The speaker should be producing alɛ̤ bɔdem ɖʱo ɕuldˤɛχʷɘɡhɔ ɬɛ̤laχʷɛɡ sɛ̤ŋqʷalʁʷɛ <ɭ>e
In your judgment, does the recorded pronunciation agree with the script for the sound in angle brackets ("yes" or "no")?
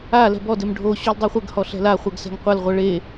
yes